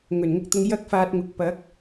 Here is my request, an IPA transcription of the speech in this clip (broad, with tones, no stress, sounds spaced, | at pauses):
ŋ ɵ˨˩ n ŋ ʊ˧ k̚ t̪ ʊ˧ ŋ j ɐ˥ k̚ f aː˧ t̚ ŋ ʊ˨ k̚ p ɐ˨˥ k̚